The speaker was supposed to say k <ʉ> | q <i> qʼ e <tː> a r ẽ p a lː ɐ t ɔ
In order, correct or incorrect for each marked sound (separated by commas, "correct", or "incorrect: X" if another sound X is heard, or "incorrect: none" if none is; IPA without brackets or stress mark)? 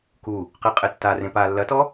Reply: incorrect: u, correct, correct